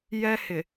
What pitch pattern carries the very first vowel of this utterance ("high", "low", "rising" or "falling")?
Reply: high